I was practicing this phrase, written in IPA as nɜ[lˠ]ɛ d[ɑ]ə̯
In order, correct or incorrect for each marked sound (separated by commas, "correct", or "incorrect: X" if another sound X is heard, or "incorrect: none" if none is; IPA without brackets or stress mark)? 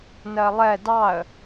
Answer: correct, correct